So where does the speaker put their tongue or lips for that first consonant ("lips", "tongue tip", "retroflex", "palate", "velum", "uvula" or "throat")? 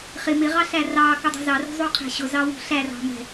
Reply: uvula